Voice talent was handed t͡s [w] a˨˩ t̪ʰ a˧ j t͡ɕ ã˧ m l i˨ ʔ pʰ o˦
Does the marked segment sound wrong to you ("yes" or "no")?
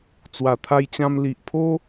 no